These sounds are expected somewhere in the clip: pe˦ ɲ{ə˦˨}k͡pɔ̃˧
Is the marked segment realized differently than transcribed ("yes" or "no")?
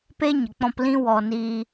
yes